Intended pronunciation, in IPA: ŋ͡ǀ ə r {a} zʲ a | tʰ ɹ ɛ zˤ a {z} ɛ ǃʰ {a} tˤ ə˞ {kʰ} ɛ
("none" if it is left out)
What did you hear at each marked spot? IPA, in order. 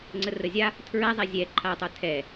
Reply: ə, zʲ, a, tʰ

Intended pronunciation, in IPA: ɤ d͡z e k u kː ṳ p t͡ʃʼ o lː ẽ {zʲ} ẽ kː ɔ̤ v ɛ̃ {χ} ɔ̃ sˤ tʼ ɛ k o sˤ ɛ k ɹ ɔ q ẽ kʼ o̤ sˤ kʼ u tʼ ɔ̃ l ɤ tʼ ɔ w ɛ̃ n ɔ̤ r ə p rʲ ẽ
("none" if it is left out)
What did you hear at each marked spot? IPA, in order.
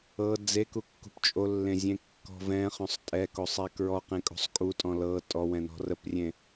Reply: zʲ, χ

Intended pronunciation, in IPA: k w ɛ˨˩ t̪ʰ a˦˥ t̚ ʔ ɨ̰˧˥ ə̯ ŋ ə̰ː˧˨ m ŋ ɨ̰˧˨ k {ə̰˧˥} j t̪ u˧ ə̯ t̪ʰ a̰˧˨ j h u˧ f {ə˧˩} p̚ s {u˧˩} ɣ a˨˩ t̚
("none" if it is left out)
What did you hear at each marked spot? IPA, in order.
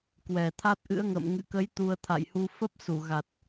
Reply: ə˨˦, ə˦˥, u˧˩

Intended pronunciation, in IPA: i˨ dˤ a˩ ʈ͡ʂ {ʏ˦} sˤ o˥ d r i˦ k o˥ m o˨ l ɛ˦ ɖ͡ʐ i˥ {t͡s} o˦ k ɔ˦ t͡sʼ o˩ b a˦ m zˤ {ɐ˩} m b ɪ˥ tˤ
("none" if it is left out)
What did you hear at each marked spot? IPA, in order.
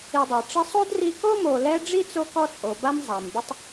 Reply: ɪ˦, t͡s, a˩

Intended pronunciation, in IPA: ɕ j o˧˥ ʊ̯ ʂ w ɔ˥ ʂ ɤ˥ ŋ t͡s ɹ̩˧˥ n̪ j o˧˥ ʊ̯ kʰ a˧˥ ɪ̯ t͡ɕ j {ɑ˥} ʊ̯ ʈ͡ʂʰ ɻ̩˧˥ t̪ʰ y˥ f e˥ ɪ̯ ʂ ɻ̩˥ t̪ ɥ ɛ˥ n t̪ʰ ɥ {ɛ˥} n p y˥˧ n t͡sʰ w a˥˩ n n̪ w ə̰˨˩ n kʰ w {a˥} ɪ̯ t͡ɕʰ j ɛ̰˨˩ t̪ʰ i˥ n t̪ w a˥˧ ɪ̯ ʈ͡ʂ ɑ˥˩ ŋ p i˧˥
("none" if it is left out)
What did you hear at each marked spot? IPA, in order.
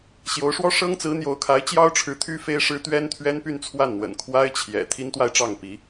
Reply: ɑ˥, ɛ˥, a˥

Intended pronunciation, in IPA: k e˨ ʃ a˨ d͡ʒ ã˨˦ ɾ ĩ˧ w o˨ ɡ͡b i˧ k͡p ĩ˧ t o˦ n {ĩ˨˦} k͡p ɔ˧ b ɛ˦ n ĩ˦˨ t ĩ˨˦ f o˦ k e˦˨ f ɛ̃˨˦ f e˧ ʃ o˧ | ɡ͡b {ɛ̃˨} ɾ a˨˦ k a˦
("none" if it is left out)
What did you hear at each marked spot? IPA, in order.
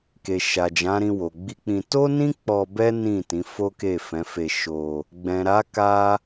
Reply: ĩ˦, ɛ̃˨

